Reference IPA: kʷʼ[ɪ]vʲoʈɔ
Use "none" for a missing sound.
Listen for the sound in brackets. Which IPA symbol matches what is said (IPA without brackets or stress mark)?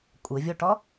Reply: ɪ